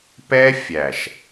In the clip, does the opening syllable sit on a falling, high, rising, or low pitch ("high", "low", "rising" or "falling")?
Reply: high